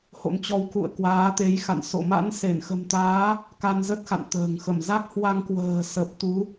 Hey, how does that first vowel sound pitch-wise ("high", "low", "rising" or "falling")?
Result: rising